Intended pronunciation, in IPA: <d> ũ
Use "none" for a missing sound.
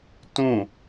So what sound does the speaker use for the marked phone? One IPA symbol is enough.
t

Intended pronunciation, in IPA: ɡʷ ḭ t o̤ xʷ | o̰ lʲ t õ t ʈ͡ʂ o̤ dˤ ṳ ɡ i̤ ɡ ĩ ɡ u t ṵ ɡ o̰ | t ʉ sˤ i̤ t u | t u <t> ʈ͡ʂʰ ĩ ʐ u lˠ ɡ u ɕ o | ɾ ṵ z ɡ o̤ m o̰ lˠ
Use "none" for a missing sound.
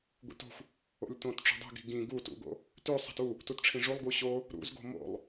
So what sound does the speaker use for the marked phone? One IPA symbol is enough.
t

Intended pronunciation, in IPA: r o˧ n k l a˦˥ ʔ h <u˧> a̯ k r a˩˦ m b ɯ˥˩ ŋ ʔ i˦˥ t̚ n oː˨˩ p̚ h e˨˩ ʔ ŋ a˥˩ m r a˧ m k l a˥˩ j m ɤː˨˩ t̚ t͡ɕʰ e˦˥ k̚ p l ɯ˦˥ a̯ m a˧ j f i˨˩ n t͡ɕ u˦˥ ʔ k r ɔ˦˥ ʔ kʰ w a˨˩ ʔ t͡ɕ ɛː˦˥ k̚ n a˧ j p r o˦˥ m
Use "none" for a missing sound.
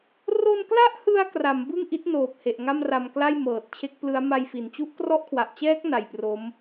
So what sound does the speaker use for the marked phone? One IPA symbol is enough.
ɯ˧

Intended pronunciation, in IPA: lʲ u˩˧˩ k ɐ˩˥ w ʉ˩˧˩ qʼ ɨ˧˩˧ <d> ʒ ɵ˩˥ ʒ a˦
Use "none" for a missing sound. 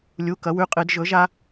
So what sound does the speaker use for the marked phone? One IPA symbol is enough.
d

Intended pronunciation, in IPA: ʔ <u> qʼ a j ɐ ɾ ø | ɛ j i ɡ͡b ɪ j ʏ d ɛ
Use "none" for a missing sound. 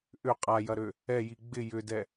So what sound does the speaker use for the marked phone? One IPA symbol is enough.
ʏ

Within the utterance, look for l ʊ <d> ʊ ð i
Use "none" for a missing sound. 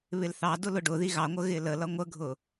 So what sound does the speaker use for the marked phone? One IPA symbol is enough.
ɖ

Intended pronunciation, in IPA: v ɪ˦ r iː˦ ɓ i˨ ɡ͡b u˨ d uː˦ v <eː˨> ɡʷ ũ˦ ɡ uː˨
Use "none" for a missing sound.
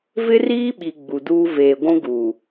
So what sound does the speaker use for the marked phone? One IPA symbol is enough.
eː˨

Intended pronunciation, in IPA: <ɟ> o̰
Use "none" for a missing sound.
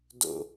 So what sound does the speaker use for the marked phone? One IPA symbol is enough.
d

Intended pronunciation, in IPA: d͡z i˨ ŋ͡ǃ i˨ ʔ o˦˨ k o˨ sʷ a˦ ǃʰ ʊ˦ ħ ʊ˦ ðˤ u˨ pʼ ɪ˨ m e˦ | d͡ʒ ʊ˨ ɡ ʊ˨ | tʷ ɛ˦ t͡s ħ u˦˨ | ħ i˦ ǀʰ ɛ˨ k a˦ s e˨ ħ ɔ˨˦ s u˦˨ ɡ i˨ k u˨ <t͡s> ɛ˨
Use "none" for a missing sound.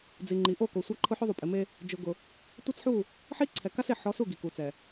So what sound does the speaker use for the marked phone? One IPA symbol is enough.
t͡s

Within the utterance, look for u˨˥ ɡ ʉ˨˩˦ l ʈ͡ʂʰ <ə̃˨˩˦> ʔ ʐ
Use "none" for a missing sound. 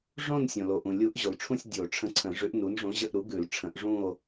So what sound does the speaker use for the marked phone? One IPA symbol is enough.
ə̃˨˩˦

